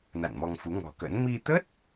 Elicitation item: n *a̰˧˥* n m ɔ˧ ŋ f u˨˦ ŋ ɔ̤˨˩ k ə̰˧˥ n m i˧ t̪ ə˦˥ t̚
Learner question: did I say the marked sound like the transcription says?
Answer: no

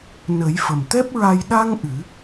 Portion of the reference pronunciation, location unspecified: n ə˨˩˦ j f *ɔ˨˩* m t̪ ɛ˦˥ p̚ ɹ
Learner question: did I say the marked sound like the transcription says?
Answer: no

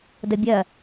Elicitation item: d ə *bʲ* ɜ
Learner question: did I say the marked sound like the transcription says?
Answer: yes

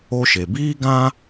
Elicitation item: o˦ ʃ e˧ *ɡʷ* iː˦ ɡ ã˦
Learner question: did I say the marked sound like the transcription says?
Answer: no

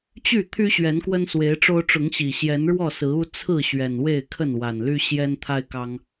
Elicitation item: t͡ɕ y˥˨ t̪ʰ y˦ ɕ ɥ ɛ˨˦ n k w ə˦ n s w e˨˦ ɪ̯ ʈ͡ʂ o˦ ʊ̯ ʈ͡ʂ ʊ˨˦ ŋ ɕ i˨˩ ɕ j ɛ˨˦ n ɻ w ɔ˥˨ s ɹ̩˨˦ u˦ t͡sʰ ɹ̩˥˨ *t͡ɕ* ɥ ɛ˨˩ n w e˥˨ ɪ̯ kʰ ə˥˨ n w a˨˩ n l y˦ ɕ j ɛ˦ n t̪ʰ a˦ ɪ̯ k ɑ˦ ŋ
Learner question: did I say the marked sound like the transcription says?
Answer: no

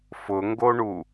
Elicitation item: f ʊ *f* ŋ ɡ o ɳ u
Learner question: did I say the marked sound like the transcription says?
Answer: no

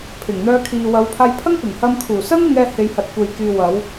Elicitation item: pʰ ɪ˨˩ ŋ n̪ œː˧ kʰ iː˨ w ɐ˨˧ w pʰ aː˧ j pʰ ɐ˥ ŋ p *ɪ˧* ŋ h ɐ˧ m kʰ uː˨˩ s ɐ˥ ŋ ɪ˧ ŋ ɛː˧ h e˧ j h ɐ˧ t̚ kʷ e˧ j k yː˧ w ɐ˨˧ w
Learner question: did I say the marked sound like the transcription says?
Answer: no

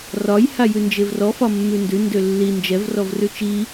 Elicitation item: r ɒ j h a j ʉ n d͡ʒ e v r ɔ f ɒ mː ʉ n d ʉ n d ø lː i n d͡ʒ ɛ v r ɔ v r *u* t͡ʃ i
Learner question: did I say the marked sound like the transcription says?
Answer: no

